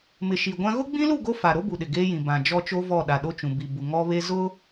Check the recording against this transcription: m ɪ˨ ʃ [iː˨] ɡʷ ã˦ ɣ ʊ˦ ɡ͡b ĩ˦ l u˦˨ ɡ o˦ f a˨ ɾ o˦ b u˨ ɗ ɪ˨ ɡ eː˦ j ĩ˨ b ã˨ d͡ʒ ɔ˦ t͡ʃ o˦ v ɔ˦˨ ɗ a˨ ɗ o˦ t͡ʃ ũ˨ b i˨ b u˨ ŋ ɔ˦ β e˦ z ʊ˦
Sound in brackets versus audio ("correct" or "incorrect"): incorrect